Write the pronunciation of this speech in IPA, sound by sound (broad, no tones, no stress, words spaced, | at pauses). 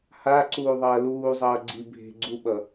haǀuːðˤʌː luːzˤʌːɡ͡ǀi bʱe̤ɡ͡ǀuɓʌ